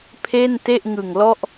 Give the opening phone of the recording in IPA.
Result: pʰ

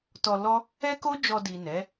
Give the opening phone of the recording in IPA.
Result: t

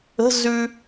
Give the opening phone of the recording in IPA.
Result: ə̤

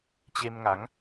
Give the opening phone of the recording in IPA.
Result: t͡ɕ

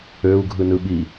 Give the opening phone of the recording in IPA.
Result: ø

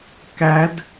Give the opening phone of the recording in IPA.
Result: k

